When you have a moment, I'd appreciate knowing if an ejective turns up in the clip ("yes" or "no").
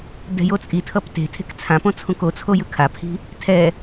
yes